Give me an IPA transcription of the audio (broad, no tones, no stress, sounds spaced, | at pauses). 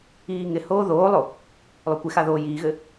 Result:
iː ŋ ɪ h oː ð oː lˠ o | lˠ o kʷ ɪ x a ð oː j iː ɣ ɘ